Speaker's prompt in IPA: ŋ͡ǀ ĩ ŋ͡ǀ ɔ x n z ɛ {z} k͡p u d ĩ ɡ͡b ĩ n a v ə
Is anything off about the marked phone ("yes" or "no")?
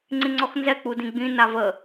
yes